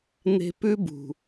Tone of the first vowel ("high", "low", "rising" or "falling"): low